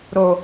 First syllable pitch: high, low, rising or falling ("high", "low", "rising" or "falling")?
low